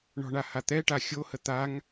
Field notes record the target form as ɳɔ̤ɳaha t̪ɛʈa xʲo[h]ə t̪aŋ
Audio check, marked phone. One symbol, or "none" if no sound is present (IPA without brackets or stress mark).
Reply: h